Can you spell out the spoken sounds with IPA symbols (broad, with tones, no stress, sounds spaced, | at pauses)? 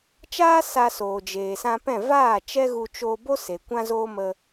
t͡ʃ aː˦ s a˧ s oː˨ d͡ʒ eː˨ s ã˧ p ɛ̃˦˨ v aː˦˨ t͡ʃ ɛ˦ ɣ u˧ t͡ʃ oː˧ b o˦ s e˨ kʷ ã˦ z oː˦ m ə˧